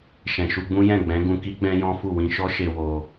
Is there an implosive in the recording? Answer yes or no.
no